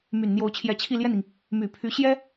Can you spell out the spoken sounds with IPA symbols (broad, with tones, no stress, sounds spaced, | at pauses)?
m y˨˩ n n̪ j o˧˥ ʊ̯ t͡ɕʰ j ɛ˧˥ t͡ɕʰ i˥˧ l j ɛ˥˩ n i˩ ŋ | m y˨˩ pʰ y˧˥ ɕ j ɛ˥